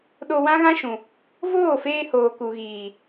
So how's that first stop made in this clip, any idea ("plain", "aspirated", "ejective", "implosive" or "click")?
implosive